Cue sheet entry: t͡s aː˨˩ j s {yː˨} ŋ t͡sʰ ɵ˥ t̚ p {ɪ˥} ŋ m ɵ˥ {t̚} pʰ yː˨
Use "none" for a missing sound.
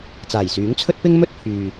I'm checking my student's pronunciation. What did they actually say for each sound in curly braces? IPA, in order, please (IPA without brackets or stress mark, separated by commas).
yː˨˥, ɪ˥, t̚